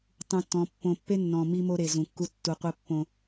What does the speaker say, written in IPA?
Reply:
tˤ ũ˨ tː ɔ̃˨ pː õ˨ pː e˦ nː ɔ̃˨ m i˦ m o˦ ɾ e˨ z ũ˨ kː u˦ tː u˨ qʷ ɛ˦ pː õ˦

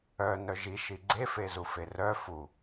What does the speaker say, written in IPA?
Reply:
œ n œ ʒ i ʃ i ɡ͡ǀ e f e z u f e r œ f u

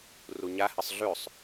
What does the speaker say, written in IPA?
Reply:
r u ɲ a h ɨ sˤ ɮ ʉ sˤ

